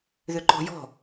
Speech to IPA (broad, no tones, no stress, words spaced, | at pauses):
ðʏǃɔ̤jɔ̤